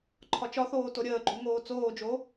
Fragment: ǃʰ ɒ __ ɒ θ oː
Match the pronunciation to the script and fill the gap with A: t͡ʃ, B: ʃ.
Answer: A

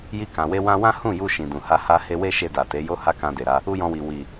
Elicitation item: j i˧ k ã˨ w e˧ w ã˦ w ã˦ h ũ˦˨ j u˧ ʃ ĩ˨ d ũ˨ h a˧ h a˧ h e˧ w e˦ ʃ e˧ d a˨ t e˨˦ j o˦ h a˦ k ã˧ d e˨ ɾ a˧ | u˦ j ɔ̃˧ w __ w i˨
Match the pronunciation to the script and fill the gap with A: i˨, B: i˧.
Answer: A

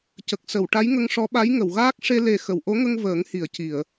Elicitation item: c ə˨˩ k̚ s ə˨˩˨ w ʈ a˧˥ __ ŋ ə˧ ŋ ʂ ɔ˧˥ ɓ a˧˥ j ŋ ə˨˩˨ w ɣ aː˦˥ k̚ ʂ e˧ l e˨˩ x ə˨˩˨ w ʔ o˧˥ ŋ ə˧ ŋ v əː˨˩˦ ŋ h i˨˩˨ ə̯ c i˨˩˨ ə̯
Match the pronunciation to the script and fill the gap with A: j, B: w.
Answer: A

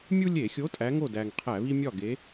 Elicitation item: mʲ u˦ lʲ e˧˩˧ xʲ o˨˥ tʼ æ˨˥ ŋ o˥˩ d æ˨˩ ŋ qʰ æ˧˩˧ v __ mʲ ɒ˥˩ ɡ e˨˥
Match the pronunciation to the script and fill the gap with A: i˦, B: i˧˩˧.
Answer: A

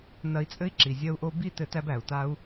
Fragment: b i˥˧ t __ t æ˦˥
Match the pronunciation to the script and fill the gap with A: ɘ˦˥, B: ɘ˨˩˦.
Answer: B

